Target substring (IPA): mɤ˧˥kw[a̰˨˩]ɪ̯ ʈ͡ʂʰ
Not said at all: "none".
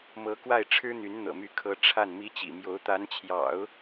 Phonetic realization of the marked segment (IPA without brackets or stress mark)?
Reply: a˥˩